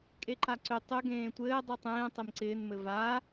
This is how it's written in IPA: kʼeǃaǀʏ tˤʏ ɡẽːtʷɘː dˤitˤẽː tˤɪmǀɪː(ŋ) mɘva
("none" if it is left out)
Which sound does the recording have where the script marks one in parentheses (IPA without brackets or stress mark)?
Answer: n